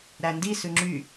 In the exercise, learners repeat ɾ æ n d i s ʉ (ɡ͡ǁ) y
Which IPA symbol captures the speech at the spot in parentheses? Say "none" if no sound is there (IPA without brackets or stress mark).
ŋ͡ǁ